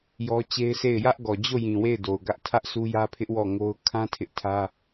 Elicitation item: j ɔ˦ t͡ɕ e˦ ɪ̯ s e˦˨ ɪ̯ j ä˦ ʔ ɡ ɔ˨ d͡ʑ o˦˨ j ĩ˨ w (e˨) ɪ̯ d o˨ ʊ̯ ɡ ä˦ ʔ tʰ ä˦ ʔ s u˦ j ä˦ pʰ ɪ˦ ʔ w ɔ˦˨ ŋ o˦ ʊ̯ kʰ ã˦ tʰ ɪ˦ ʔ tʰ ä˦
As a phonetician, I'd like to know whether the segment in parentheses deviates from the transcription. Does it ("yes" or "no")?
yes